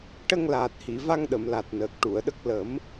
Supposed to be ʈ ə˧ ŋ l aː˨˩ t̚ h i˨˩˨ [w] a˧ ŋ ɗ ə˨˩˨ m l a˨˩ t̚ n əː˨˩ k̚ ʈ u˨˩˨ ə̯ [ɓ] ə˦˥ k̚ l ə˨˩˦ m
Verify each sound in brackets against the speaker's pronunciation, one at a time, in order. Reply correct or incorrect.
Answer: incorrect: v, incorrect: ɗ

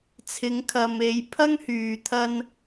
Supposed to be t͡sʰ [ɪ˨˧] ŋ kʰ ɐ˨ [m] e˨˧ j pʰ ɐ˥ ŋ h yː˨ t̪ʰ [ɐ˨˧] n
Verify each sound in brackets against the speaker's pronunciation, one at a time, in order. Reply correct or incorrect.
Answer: correct, correct, incorrect: ɐ˥

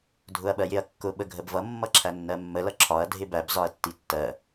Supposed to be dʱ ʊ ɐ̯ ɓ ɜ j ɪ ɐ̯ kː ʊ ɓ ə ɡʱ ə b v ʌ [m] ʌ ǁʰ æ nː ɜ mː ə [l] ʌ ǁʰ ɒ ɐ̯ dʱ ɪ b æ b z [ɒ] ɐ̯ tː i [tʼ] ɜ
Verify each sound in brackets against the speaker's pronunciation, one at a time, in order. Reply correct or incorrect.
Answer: incorrect: mː, correct, correct, incorrect: tː

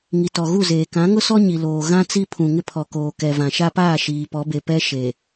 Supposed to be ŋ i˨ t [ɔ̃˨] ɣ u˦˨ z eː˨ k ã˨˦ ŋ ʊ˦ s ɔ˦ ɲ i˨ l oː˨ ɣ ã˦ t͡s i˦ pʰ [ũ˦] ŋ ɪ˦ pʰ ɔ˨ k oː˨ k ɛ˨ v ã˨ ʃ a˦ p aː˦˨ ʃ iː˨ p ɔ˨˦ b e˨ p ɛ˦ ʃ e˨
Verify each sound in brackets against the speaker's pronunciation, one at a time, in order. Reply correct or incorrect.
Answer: incorrect: ɔ˨, incorrect: ũ˨

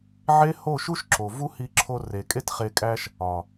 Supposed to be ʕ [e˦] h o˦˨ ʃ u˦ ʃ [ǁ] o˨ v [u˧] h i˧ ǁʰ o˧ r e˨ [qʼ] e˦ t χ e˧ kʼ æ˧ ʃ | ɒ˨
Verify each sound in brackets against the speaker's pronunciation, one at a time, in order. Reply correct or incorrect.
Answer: correct, correct, incorrect: u˦, incorrect: kʼ

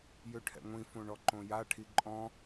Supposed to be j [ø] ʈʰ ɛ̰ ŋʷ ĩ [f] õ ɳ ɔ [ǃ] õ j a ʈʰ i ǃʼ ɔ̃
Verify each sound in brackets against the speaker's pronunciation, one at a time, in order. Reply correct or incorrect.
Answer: correct, correct, correct

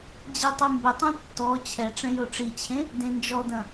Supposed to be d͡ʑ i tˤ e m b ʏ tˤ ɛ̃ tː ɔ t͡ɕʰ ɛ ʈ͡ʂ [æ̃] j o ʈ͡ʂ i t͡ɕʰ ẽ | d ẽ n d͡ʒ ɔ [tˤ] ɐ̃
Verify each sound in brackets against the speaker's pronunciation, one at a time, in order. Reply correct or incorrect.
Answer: incorrect: ɛ̃, incorrect: d

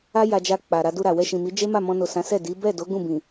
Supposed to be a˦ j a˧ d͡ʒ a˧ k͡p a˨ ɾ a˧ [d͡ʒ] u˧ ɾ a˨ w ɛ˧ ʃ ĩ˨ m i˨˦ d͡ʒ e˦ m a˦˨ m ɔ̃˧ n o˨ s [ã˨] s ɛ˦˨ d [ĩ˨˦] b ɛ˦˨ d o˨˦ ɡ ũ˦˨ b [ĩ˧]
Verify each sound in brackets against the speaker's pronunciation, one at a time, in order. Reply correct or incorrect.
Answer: incorrect: d, incorrect: ã˨˦, incorrect: i˨˦, incorrect: ĩ˨

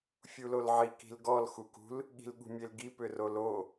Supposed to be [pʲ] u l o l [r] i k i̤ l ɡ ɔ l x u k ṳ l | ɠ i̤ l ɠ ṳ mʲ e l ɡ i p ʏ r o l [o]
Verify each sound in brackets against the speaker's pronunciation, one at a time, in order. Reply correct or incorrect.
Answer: incorrect: fʲ, incorrect: ʕ, correct

